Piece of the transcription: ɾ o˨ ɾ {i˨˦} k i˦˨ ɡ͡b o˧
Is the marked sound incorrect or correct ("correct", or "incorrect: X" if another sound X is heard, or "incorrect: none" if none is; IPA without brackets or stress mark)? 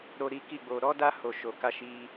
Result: correct